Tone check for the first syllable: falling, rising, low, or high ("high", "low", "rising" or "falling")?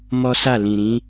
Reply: high